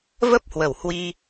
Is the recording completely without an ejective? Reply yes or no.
yes